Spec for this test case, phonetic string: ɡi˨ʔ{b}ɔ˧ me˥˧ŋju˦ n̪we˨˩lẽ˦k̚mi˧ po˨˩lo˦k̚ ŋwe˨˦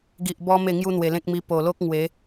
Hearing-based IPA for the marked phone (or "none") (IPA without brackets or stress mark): b